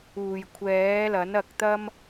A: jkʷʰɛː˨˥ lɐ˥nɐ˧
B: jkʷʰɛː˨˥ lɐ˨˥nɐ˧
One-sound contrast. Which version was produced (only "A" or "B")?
B